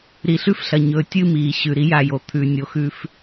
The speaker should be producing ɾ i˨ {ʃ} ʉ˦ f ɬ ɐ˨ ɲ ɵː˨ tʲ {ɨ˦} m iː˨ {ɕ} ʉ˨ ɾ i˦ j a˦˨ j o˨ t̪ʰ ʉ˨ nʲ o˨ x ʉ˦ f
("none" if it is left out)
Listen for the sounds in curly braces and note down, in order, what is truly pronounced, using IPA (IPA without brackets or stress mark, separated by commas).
ɬ, ɨ˦, ɕ